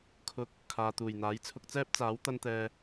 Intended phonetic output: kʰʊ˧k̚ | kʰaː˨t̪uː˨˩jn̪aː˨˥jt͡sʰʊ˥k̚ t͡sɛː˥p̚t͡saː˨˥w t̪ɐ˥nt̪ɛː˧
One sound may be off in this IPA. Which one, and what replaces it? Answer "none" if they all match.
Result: none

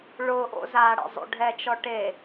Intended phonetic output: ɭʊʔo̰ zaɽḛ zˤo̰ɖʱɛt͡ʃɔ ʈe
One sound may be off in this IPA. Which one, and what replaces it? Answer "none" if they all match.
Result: none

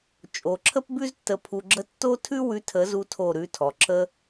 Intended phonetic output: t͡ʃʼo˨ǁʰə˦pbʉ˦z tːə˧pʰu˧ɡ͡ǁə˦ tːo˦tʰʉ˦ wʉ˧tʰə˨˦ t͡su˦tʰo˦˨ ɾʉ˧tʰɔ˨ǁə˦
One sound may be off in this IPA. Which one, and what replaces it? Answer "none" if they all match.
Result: t͡s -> z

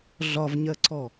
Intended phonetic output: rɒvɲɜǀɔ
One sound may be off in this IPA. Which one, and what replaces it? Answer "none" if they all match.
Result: r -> ɮ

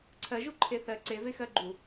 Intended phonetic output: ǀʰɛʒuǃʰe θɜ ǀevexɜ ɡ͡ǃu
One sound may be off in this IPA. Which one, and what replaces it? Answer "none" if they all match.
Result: ɛ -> ɜ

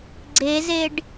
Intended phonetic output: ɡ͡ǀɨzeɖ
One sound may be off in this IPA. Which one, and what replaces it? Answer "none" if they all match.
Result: ɨ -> e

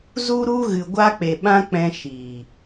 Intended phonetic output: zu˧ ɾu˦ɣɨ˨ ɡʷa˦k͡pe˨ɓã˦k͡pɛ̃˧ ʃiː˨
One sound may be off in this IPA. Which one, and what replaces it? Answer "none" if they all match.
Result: none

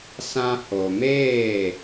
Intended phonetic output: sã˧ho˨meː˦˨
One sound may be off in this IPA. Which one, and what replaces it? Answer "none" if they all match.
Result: none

